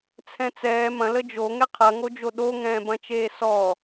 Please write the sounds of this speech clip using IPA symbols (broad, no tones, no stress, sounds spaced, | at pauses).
t͡sʰ ɛ̃ t͡s ɛː m ɐ̃ l ə d͡ʒ o ŋ ɛ qʰ ɐ ŋ o d͡ʒ o ɗ o ŋ ɛ̃ː b ɐ̃ t͡ʃ eː s ɔ